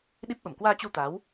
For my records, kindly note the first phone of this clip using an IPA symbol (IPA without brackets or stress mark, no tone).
ɗ